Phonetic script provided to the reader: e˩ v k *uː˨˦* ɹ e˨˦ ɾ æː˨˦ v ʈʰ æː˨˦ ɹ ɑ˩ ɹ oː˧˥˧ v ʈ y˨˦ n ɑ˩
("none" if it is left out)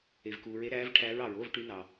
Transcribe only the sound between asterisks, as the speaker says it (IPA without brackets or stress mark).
uː˩